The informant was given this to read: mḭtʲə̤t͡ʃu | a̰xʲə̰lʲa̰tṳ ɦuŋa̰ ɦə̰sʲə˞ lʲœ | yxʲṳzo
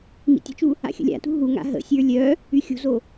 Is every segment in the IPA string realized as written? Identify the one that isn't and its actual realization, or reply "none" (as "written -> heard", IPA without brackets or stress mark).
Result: none